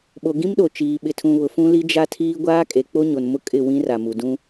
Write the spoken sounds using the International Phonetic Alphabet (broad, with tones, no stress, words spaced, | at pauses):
ɓo˨ɡĩ˦mɗo˨t͡ʃiː˨ ɓɪ˨tʰũ˨βʊ˨ fũ˦li˦d͡ʒa˦tʰiː˦ ɡʷaː˦kʼe˨k͡po˦ɲo˨n mʊ˦kʼɪ˦˨ wĩ˦ra˨mu˨ dũ˦